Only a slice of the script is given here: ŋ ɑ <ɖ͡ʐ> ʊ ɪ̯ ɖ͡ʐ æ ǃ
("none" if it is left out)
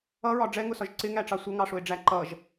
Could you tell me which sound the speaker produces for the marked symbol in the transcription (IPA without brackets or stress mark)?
ʂ